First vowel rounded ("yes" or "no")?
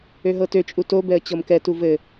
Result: yes